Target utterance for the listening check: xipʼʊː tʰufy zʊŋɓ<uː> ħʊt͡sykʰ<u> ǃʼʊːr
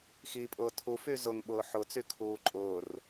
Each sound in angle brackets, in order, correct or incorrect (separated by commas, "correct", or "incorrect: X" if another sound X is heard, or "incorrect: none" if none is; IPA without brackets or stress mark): incorrect: ʊː, incorrect: uː